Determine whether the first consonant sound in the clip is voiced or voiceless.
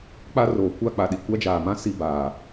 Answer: voiceless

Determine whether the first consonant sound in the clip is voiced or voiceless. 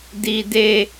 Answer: voiced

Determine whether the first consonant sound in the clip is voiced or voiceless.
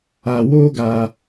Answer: voiced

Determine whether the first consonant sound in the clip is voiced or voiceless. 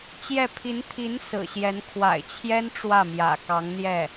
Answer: voiceless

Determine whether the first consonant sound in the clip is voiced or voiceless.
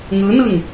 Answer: voiced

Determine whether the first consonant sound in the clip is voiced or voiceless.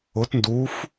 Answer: voiceless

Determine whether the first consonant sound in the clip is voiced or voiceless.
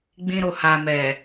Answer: voiced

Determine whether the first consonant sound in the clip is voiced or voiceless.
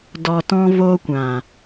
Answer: voiced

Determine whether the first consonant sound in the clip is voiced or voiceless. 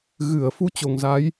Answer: voiced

